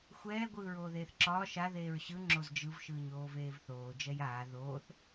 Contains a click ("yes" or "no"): yes